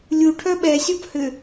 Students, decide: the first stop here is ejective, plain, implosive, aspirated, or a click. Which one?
aspirated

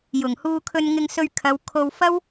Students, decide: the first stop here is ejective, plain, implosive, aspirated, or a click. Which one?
aspirated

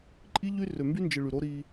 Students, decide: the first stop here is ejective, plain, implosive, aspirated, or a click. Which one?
click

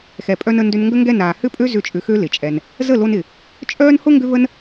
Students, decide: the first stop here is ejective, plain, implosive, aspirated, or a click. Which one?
ejective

